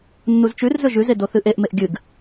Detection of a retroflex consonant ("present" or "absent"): absent